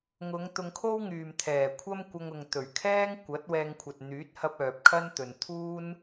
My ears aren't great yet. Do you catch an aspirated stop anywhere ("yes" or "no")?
yes